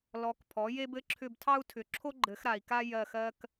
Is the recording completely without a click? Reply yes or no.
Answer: no